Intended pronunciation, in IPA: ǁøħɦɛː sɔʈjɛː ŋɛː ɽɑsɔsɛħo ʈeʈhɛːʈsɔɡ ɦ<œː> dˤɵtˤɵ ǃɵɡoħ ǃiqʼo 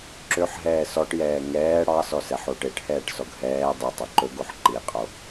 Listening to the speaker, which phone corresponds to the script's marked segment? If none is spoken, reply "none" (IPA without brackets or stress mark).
ɛː